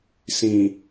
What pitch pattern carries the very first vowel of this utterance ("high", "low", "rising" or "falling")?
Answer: low